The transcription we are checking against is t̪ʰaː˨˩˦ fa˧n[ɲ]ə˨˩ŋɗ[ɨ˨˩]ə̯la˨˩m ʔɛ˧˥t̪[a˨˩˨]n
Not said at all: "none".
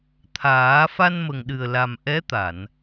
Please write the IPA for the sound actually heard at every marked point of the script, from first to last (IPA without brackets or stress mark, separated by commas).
m, ɨ˨˩, a˨˩˨